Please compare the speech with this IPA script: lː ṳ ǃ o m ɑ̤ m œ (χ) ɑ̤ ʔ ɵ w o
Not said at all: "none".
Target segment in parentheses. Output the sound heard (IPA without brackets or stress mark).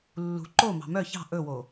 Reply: ç